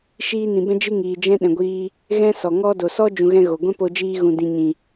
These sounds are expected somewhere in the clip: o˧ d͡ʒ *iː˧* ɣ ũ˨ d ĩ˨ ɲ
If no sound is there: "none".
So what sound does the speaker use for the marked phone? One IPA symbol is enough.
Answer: iː˧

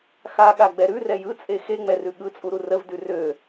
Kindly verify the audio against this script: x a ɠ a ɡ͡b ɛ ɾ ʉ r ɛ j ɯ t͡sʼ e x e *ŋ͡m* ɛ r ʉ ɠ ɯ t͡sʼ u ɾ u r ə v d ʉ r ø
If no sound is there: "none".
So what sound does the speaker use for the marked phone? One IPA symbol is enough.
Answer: ŋ͡m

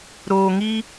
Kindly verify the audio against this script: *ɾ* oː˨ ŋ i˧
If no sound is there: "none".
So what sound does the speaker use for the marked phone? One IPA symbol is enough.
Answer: ɾ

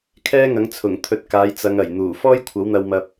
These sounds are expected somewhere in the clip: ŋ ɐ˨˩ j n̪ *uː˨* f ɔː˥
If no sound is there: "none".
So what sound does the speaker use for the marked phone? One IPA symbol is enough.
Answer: uː˨˩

